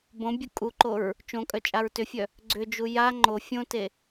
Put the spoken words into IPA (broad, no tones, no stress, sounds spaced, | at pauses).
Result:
b õ bʲ u kʼ u ǃ o ɹ | t͡ʃ õ kʼ œ t͡ʃʼ a ɹ t ʏ fʲ œ | ɡ͡ǀ ʏ d͡ʒ u j a ŋ͡ǃ o fʲ õ t e